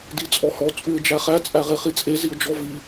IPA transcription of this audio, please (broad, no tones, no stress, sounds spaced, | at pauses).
d i t͡sʼ ɔ h ɔ t͡sʼ ʉ ɪ̯ d͡ʒ æ χ æ t͡sʼ æ ʁ e χ i t͡sʼ e z i ʊ̯ d͡ʒ ɔ v i